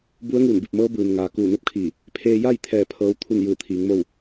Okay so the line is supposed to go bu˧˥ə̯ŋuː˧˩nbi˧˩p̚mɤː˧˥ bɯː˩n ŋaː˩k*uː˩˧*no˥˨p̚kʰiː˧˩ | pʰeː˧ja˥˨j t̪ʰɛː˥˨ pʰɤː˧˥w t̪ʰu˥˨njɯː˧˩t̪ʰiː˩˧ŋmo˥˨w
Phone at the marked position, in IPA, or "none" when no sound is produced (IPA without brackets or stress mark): uː˧˩